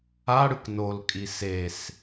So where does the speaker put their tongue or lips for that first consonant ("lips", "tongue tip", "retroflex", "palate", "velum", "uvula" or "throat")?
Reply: retroflex